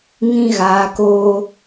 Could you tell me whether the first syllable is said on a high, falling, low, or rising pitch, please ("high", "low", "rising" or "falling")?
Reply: high